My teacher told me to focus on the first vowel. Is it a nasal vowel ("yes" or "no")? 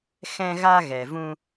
yes